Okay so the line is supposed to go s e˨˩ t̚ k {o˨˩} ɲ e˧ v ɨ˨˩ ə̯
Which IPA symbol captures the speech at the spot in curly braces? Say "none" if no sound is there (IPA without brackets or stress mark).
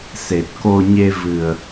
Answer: o˧